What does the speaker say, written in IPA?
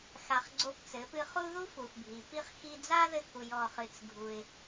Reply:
x a˧ χ ɡ͡ǀ o˦ p t͡s ɘ˨˦ p ɨ˦ χ u˦ ð u˦ f u˨ f bʱ i˨ p i˦ χ x i˧ d͡z a˦ ð ɘ˧ k u˨ j ɔ˧ χ ɨ˧ t͡s ɡʱ u˧ ɪ̯

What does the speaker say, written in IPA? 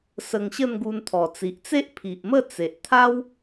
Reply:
s ə˧ ŋ ɕ ə˥˧ n ɡ u˧ n t̪ʰ ɔ˨˩ t͡s i˨ ʔ t͡s e˦ ʔ pʰ i˨ ʔ m ə˥˧ t͡s e˨ ʔ t̪ʰ a˦ w

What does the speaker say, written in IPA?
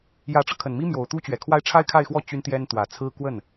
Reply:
j ä˧˥ ʈ͡ʂ ɤ˧ kʰ ə˨˩ n m i˥ m j o˨˩ ʊ̯ t̪ u˥ t͡ɕ ɥ ɛ˨˩ kʰ w a˥ ɪ̯ ʈ͡ʂʰ a˥ ɪ̯ kʰ a˥˧ ɪ̯ x w ɔ˥˩ t͡ɕ y˥ n t̪ j ɛ˥ n t̪ w ä˨˩ t͡sʰ ɹ̩˥ k w ə˥˩ n

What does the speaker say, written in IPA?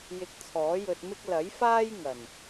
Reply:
j ɪ˧ k̚ t͡sʰ ɔː˨˥ j ɵ˧ t̚ m ɪ˥ k̚ l ɐ˨˥ j f aː˥ j ŋ ɐ˨˩ n

